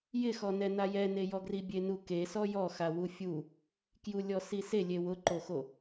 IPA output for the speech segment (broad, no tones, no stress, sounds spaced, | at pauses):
j ɪ x ɔ n ɛ n a j ɛ n e j ɔ ɡ r i bʲ e n u k e s ɔ j ɔ x a w u fʲ u | k j u lʲ ɔ s i s e lʲ e w ʊ ǃ o x o